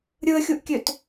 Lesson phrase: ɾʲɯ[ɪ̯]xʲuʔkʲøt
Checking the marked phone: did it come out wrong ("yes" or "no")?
yes